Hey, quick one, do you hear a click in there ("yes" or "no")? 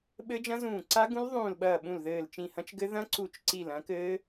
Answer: yes